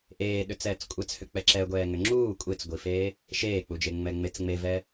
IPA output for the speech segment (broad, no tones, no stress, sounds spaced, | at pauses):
ʔ eː ɗ ʏ t͡s ɛː t͡s kʷʼ ɛ t͡s h ʏ k͡p ɛ ǁ ɛ ɡʷ ɛː ŋ ʏ ŋ͡ǁ uː kʷʼ e t͡s ɡʷ i f eː | ʃ eː k͡p u d͡ʒ e ŋ͡m ɛ ŋ͡m e t͡s ŋ͡m e v ɛ